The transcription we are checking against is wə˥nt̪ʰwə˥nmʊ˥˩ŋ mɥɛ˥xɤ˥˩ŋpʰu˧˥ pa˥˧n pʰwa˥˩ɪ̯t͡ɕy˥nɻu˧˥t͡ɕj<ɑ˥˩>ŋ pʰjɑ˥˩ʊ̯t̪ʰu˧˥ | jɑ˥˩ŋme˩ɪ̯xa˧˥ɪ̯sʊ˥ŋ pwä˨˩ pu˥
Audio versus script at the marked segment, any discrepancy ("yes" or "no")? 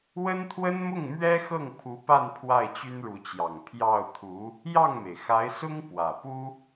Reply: yes